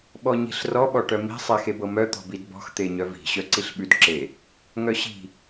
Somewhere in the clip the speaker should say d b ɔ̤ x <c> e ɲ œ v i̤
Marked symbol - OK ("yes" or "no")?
no